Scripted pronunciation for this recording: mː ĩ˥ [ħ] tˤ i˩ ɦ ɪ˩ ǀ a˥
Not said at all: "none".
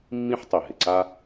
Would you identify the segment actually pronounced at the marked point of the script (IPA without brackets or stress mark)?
ħ